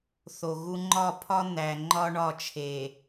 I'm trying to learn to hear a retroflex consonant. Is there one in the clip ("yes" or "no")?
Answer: yes